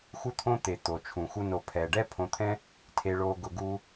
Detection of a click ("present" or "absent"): absent